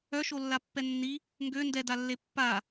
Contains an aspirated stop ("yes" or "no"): no